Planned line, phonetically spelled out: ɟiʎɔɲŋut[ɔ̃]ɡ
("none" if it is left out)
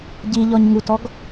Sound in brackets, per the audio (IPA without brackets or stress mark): ɔ